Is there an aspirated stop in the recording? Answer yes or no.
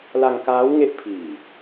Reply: yes